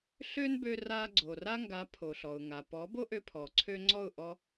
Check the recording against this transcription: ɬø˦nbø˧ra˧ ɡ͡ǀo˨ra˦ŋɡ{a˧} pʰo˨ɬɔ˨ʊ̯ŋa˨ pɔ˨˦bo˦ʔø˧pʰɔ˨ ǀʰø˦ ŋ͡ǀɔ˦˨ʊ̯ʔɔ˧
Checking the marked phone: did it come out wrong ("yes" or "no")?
yes